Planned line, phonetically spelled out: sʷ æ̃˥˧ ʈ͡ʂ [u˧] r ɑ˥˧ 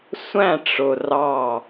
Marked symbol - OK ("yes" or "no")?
no